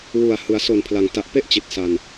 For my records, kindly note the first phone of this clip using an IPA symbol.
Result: w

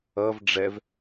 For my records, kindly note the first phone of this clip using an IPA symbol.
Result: ʌ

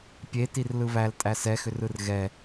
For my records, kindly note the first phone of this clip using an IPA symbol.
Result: pʲ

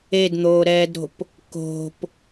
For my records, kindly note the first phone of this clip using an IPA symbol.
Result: e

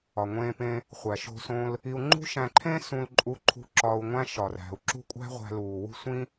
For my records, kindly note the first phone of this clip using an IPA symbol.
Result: ɒ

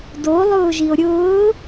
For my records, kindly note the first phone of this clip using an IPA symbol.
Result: d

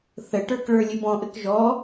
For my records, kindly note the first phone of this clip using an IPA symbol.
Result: θ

